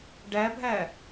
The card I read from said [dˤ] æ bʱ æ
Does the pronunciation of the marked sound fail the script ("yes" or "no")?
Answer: yes